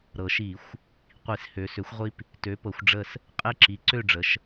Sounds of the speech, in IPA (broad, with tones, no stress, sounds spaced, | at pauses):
ɾ ɤ˩ ʃ i˧˩˧ xʷ | qʷ i˧˩˧ s h ø˩˧ s ø˩˥ xʷ ʁʷ i˦ p | t ø˩˥ p ɤ˩˧ xʷ ɖ͡ʐ ə˦˨ s | qʼ e˦ ǁ i˩˥ ǀ ø˦˨ ɖ͡ʐ ə˩˧ ʃ